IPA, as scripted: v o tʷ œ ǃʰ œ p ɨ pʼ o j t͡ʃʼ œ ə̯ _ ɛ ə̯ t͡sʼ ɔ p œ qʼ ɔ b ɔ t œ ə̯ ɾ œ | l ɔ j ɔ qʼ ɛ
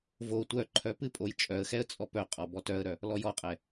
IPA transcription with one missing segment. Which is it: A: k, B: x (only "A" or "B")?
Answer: B